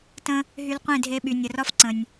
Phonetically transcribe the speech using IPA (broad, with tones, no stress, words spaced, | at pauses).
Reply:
tə̃˦ | ɦy˧lqʷẽ˦˨dʱe˧ɓy˨ nʲə˨rɒ˦f ǀə̃˨nʲ